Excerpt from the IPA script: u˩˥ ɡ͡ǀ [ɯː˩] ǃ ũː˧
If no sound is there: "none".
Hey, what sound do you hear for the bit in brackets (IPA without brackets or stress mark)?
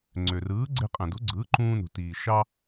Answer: ɯː˩˥